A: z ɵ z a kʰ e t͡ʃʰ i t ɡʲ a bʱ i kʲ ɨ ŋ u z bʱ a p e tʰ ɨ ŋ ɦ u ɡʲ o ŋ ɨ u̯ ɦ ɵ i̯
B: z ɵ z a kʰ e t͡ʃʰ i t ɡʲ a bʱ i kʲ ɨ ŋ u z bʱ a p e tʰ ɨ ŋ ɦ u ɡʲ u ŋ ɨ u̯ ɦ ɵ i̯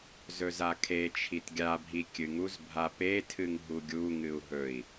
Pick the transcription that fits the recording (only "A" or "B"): B